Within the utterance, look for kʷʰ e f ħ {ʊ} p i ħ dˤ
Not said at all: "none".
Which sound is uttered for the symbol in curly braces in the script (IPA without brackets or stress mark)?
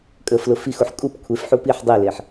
u